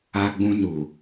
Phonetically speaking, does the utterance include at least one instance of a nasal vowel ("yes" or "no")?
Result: yes